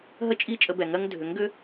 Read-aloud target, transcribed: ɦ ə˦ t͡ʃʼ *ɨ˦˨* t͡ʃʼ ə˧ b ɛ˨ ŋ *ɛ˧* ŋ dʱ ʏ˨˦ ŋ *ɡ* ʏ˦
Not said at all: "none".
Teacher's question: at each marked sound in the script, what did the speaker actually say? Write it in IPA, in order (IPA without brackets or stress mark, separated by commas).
i˦˨, ɜ˧, ɡ